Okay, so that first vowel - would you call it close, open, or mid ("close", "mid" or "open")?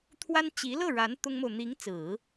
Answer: open